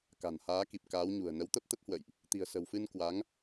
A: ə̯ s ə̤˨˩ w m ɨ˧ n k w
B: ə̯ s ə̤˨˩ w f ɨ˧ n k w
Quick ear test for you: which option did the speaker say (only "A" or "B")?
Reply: B